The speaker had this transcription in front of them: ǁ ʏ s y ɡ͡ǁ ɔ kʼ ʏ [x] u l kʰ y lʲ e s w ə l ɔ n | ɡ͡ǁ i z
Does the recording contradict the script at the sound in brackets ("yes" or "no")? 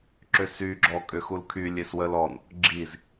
no